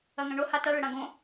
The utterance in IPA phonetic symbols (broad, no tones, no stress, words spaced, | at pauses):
ɐŋãɳo hata ɭɘɽãɡõ